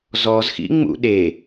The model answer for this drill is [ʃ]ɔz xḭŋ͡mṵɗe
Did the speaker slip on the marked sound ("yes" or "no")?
yes